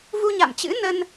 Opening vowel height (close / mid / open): close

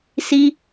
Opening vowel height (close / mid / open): close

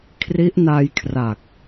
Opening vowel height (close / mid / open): close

